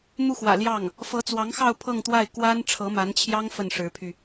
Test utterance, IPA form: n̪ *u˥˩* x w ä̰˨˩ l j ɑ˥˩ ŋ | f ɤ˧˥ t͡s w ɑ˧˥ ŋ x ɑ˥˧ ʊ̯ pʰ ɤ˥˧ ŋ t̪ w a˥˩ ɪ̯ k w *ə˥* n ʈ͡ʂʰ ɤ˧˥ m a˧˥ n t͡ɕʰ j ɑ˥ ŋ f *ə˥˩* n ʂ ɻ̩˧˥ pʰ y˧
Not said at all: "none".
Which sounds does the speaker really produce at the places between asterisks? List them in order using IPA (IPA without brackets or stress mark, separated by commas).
u˥˩, a˥, ə˥˩